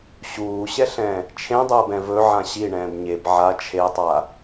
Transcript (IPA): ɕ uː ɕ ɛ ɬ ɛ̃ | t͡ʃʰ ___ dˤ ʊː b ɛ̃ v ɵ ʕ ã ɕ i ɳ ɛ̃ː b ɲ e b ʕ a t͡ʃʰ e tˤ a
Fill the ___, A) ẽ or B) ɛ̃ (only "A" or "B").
A